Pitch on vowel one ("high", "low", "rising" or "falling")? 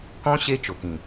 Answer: high